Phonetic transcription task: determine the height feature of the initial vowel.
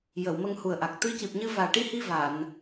mid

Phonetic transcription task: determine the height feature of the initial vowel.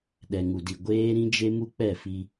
mid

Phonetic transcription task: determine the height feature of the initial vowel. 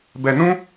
mid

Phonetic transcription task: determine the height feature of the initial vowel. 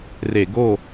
mid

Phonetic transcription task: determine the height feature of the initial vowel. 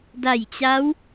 low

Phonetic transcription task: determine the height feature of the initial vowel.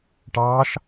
low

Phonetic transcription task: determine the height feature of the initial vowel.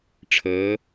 mid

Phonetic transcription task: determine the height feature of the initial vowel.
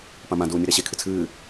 low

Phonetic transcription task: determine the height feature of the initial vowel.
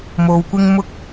mid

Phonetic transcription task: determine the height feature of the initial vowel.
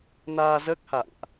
low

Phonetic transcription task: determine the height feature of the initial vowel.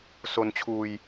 mid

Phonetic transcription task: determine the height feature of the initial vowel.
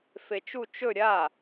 mid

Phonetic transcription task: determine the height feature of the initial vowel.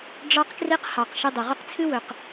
low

